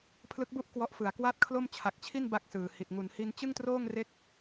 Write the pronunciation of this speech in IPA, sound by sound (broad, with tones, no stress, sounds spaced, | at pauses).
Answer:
pʰ l ɯ˦˥ k̚ b u˥˩ ʔ k w ɔ˦˥ ʔ f ɯ˨˩ a̯ k w a˥˩ t̚ kʰ l o˥˩ m t͡ɕʰ a˨˩ k̚ t͡ɕʰ i˥˩ n b a˥˩ k̚ s ɯː˨˩ h i˨˩ t̚ ŋ u˩˦ n h i˧ n t͡ɕ ɯ˥˩ ŋ t r oː˥˩ ŋ r e˦˥ k̚